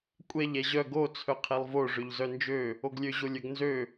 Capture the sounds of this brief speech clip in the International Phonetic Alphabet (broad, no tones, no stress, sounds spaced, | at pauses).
kʷʼ ɛ ʎ ɛ ʑ œ ɡ o t͡sʰ œ qʰ ɛ lˠ v o ʐ ø ʎ z œ n d͡ʒ ø | o ɡ lʲ ø ʑ o lʲ œ ɡ n z ø